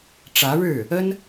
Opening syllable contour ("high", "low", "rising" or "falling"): rising